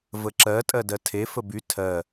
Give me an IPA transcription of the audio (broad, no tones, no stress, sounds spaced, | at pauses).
v ə ǁ ɜ tʼ ɜ d ɜ tʰ e f ə b y tʰ ɜ